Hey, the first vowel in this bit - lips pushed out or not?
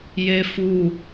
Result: no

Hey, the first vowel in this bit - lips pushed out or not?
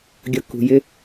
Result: no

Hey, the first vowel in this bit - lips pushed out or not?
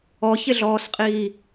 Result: yes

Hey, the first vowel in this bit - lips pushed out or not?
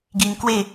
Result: no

